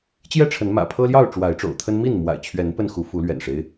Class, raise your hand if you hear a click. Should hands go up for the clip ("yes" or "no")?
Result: no